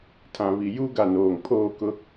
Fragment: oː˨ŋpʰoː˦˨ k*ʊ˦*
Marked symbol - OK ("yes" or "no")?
yes